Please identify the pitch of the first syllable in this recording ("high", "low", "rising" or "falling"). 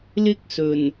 high